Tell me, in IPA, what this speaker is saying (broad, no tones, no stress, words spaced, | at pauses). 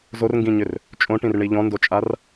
zorŋɡĩɲʏr | t͡ʃʼõʈĩrɳi ʎɔ̃ndot͡ʃʼar